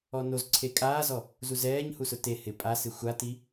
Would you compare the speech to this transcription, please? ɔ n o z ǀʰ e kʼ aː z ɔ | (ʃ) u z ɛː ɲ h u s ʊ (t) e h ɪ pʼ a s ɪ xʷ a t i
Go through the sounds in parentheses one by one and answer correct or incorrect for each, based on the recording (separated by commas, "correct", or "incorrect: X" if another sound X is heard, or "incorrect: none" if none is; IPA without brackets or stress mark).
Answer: incorrect: z, correct